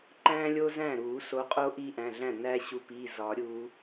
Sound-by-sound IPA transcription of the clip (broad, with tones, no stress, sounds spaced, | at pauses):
ǃ æ̃ː˦ lʲ o˦ z æ̃˥˩ ɾ uː˨˩˦ s o˨˦ qʼ o˦ ʔ iː˦ ʔ æ̃˩˧˩ ɮ æ̃˥˩ n æː˦ ɕ u˨˦ p iː˩˧˩ z ɒː˨˩˦ ɾʲ uː˨˦